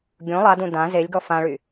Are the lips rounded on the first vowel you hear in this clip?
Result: yes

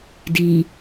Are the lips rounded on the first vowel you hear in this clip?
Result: no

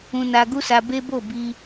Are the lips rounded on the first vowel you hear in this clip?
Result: yes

